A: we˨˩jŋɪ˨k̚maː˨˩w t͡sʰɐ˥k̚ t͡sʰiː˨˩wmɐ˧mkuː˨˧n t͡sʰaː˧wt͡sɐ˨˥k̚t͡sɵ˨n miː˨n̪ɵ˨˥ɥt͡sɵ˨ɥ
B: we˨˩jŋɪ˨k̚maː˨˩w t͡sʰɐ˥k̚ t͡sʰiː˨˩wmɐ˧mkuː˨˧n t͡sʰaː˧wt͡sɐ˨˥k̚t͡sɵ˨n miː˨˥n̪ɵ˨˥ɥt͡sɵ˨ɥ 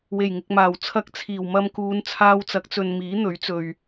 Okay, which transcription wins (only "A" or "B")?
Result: B